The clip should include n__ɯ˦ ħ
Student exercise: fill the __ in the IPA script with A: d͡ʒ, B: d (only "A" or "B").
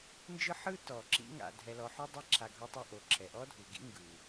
A